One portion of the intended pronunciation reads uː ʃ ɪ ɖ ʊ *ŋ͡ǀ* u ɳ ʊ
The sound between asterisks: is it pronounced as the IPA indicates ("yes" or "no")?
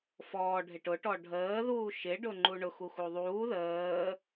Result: no